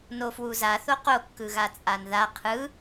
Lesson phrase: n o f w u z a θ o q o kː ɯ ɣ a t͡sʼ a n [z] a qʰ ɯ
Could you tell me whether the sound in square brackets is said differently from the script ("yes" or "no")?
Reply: yes